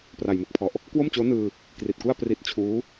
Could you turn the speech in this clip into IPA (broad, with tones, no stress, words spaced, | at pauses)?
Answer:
pra˨˩jmɯ˦˥k̚pʰɔ˨˩ʔ | kwo˥˩mt͡ɕoː˦˥ nɯː˧ | kri˨˩t̚ku˥˩a̯ pri˦˥t̚t͡ɕʰuː˦˥